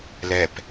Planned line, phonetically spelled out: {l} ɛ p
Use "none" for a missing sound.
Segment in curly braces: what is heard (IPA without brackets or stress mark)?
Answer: l